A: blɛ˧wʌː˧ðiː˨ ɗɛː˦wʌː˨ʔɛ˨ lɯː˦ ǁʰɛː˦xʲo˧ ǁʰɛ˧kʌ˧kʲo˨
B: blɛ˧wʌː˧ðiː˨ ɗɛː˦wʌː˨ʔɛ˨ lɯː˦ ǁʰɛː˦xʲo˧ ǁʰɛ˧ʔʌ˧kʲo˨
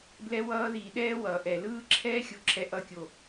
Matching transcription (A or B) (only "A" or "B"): B